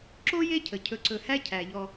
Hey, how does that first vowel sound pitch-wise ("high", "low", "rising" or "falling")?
high